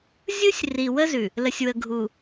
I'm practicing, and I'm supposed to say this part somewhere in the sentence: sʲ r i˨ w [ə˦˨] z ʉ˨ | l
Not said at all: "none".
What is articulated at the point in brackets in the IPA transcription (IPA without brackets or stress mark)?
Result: ə˦